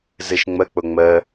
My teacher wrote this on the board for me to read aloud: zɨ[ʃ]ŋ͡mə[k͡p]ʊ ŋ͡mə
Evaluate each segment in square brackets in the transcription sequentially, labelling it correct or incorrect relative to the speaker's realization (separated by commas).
correct, correct